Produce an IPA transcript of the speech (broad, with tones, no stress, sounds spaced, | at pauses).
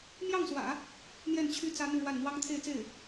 m j ɑ˥˩ ŋ s w ä̰˨˩˦ | n̪ j ɛ˥˩ n t͡ɕʰ y˥ t͡s ä˥ n̪ u˥˧ ɻ w a˥˩ n n̪ w ɑ˥ ŋ t̪ʰ e˥˧ ɪ̯ t͡s e˥˩ ɪ̯